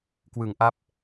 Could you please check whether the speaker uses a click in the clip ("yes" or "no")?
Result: no